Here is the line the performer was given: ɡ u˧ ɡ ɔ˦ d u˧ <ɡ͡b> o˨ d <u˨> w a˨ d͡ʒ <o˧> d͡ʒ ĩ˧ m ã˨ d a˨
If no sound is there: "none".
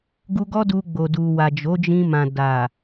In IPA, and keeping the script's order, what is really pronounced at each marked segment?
ɡ͡b, u˨, o˨˦

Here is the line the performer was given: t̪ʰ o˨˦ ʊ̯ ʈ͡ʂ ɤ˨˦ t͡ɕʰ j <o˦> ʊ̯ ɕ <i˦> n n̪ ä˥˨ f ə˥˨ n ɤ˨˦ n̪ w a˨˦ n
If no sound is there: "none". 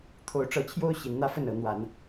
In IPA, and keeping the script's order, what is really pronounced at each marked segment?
o˦, i˨˦

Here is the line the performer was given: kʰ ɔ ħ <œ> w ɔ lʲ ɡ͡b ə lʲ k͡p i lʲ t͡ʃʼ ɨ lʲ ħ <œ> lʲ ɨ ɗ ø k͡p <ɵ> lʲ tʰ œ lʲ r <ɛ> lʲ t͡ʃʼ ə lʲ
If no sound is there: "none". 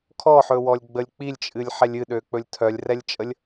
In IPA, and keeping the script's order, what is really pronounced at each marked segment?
ɵ, ɛ, ɵ, ɛ

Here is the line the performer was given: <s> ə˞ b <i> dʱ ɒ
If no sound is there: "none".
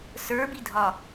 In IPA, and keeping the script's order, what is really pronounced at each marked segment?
s, i

